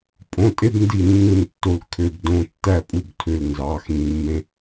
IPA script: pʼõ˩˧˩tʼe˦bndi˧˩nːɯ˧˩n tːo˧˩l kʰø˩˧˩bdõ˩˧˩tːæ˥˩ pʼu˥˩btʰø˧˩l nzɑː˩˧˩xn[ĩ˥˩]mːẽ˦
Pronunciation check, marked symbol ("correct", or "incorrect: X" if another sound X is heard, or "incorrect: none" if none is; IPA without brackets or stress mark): incorrect: ĩ˩˧˩